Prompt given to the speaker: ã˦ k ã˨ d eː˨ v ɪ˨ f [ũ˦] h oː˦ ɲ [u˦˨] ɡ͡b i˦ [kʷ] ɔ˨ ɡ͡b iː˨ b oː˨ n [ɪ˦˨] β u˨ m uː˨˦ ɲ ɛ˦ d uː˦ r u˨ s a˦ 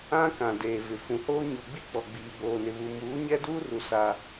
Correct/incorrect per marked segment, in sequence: incorrect: ũ˨, incorrect: u˨, incorrect: k͡p, incorrect: ɪ˨

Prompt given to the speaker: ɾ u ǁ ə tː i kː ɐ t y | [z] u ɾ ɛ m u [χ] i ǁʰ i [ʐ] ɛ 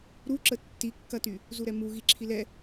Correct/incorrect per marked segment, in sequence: correct, incorrect: ɣ, incorrect: l

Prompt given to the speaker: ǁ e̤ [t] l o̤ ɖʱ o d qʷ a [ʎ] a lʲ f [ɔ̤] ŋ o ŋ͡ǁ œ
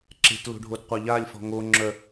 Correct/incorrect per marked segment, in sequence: correct, correct, correct

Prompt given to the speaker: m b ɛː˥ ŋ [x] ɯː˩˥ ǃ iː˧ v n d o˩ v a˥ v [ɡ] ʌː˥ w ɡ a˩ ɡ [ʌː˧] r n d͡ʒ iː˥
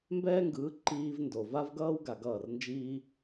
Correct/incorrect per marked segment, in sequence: incorrect: ɡ, correct, incorrect: ʌː˥˩

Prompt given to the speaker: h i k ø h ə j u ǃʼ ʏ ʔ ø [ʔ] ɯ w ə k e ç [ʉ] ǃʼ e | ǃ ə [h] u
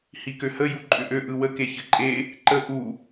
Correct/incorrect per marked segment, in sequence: correct, incorrect: ɘ, incorrect: ʔ

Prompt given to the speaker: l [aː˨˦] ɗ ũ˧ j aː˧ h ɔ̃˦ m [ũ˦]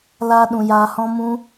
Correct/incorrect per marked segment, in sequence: incorrect: aː˦, correct

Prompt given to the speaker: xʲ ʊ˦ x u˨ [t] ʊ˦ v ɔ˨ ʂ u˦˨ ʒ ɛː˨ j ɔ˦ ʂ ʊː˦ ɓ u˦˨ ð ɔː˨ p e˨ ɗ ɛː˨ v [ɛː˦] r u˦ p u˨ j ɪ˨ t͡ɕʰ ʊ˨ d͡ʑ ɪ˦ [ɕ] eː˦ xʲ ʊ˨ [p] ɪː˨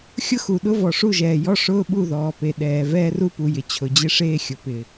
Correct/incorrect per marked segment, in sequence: incorrect: ɗ, correct, incorrect: ʂ, correct

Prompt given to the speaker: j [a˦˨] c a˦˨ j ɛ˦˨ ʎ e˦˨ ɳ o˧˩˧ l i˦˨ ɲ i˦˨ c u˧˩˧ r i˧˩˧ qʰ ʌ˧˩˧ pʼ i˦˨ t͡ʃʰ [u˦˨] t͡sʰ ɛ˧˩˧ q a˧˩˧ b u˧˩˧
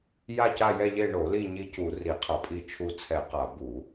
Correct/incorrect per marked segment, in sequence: correct, correct

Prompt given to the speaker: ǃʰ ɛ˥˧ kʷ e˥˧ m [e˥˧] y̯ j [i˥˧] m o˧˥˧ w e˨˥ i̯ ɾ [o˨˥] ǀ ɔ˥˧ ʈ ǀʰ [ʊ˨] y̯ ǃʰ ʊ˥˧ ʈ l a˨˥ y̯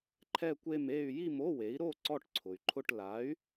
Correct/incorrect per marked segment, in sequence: correct, correct, incorrect: o˥˧, correct

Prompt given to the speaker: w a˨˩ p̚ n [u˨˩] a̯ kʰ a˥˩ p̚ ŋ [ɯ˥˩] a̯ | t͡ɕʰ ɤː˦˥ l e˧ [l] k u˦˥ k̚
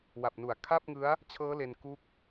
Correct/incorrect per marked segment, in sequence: correct, incorrect: ɯ˦˥, incorrect: n

